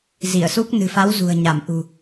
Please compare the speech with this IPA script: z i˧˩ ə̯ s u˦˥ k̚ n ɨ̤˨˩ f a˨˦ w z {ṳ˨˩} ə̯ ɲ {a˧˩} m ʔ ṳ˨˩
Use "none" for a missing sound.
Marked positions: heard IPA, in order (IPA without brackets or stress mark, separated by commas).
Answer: ṳ˨˩, a˧˩